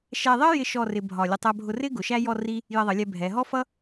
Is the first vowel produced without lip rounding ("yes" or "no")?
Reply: yes